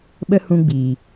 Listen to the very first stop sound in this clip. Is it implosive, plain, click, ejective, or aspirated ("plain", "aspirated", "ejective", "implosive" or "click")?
implosive